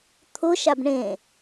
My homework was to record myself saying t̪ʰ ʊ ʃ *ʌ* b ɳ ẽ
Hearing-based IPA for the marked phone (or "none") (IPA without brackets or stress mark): a